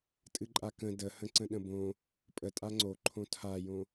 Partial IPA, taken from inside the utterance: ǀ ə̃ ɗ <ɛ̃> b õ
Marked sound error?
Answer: yes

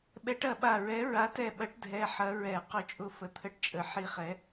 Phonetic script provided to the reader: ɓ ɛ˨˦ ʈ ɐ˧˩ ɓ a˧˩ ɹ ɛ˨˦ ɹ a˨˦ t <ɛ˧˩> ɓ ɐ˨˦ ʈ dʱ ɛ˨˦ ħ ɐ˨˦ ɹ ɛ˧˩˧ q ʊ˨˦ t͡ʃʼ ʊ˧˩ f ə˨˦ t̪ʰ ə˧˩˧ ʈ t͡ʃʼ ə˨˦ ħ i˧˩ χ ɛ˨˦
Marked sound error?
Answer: no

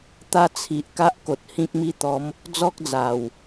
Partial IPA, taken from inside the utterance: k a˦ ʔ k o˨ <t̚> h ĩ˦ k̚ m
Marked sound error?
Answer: no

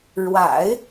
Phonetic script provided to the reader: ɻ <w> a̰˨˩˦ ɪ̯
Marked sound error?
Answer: no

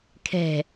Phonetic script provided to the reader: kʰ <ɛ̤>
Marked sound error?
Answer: no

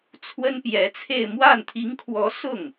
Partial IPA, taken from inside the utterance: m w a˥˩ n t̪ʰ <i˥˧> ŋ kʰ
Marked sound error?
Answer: yes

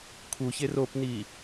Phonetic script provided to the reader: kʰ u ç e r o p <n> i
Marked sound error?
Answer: no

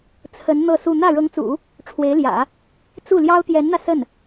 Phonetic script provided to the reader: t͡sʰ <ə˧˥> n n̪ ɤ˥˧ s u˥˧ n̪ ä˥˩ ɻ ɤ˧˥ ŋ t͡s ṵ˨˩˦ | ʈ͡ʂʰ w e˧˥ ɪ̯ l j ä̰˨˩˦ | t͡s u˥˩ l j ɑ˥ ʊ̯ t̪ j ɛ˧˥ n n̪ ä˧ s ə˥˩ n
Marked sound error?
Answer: no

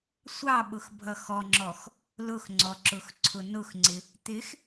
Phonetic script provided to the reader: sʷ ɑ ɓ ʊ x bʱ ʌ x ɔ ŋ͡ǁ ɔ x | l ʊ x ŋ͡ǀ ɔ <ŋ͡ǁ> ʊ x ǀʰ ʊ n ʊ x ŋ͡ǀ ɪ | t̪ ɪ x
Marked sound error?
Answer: yes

